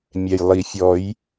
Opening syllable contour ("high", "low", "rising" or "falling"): low